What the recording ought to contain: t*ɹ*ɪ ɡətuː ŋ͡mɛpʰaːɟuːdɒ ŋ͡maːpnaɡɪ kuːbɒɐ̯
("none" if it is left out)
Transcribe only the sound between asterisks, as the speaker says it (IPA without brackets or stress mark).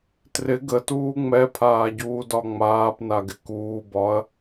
r